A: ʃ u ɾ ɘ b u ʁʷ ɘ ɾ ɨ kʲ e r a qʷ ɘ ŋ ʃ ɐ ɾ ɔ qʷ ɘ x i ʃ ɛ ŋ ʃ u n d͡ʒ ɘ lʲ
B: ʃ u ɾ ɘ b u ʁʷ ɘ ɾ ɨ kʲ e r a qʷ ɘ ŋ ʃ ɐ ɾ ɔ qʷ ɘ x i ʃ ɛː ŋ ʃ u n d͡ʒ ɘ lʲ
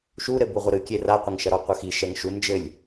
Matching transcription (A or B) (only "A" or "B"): A